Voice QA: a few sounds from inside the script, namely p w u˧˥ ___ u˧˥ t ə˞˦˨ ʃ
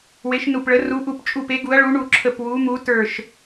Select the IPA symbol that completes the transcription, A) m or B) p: A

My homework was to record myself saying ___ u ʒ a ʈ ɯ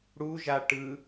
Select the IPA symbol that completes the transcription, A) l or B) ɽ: B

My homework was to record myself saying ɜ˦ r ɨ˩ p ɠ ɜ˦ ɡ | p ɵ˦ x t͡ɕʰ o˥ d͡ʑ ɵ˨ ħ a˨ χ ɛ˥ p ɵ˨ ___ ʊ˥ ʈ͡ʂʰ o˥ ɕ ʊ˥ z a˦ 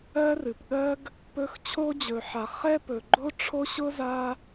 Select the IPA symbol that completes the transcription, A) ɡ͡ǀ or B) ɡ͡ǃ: B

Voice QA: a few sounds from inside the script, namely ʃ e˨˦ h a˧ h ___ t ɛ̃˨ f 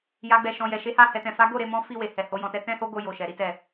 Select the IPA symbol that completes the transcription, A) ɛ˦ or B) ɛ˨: B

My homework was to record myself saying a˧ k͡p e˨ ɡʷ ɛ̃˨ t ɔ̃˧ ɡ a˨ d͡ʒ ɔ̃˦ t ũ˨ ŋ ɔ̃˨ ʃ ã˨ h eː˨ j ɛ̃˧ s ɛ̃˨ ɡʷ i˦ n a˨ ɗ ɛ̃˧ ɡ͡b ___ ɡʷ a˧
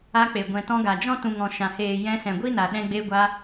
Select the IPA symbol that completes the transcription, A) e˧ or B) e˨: A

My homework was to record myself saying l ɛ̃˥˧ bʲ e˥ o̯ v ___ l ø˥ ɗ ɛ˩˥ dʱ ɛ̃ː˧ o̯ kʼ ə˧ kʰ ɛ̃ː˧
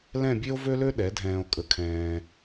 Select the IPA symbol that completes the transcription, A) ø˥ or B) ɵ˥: A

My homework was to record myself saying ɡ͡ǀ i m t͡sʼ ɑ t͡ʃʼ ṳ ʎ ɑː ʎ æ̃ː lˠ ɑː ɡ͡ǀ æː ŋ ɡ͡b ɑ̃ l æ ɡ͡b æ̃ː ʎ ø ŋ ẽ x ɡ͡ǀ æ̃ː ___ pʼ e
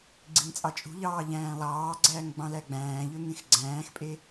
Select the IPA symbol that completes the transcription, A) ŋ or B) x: B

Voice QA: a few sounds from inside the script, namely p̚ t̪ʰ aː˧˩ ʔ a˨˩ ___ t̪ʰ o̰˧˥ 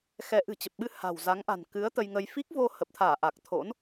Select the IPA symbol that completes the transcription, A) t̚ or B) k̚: B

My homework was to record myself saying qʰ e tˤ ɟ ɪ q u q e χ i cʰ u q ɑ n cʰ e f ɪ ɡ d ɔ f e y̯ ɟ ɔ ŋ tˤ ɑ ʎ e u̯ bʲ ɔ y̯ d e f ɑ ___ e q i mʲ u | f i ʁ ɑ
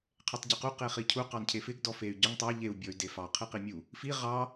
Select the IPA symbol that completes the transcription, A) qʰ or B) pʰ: A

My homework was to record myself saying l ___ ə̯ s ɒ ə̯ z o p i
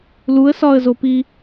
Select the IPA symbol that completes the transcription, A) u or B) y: A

